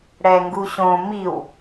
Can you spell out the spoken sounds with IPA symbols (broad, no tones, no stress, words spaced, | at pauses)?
ɽɛŋɡuɕõ miw